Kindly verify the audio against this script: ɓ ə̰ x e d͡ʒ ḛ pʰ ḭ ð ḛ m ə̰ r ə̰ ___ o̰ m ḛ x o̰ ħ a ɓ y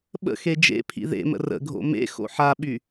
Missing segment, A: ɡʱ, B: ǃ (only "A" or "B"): A